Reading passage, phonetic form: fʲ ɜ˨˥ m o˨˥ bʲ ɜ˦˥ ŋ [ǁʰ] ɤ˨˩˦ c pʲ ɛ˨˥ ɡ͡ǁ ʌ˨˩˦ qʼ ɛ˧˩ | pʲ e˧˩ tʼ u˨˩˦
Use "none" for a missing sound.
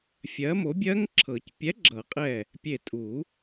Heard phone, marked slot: ǁʰ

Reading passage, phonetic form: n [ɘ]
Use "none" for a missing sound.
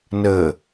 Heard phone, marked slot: ɘ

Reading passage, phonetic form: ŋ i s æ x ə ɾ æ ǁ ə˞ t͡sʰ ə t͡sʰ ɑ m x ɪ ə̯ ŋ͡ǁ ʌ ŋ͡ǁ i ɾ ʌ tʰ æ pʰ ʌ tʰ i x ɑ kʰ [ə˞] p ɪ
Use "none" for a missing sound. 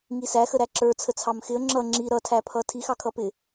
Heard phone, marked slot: ʌ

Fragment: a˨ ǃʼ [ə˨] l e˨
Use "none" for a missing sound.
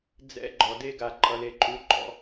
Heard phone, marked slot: ʌ˨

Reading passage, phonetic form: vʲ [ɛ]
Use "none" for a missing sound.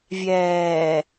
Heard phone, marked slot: ɛː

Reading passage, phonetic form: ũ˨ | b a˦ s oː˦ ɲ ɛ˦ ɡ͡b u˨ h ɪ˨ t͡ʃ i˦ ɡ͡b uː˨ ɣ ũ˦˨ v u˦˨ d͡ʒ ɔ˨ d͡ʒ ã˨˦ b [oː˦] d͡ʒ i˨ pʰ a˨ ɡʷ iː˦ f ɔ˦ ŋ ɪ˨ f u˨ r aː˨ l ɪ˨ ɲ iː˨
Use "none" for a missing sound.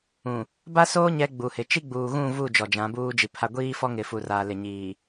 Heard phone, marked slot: uː˦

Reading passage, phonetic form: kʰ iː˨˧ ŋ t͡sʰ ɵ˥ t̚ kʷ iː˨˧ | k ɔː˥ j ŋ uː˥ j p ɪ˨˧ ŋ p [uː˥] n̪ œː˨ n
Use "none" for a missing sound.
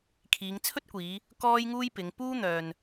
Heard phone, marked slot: uː˥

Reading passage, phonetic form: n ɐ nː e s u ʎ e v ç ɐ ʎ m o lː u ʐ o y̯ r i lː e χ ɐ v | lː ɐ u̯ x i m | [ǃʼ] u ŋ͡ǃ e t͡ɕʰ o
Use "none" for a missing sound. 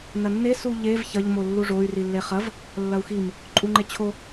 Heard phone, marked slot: ǃʼ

